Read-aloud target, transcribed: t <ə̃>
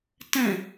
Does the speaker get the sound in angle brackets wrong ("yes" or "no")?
no